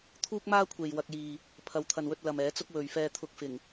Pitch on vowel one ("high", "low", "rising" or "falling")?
high